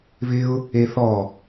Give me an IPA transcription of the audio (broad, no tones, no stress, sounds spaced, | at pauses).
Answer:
β ɪ ʊ̯ | e θ ɔ